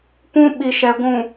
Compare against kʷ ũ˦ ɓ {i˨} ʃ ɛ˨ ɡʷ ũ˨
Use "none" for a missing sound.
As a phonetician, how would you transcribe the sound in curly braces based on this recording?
i˨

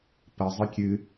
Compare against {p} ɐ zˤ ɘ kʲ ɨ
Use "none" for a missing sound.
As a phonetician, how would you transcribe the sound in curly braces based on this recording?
p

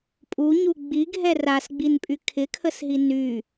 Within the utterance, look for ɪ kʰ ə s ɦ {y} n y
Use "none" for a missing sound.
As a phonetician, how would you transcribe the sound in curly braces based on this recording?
i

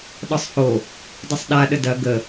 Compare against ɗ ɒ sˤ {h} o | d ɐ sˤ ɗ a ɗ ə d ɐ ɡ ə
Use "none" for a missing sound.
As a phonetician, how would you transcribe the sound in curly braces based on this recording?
h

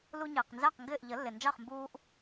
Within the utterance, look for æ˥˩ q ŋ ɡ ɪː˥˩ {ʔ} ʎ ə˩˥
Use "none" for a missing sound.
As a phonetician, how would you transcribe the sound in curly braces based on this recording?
ʔ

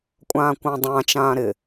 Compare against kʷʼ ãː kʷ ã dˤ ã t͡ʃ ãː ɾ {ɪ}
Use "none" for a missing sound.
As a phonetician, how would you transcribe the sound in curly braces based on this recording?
ɪ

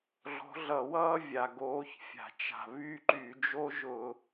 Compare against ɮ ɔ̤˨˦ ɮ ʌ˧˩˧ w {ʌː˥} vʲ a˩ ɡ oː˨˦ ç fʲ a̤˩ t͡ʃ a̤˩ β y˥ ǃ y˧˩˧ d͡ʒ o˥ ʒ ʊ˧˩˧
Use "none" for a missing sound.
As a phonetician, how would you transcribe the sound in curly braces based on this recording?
ʌː˥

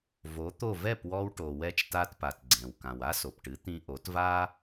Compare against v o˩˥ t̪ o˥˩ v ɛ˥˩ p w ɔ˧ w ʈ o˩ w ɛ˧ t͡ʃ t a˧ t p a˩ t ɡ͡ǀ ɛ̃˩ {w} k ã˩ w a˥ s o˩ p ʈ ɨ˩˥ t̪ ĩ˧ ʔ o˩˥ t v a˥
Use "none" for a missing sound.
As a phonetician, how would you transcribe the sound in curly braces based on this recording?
w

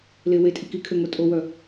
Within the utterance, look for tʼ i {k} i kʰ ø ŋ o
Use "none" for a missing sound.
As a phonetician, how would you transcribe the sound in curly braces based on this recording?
k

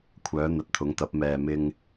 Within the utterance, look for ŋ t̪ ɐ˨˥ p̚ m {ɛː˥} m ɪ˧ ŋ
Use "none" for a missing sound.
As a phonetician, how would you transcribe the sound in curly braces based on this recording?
ɛː˨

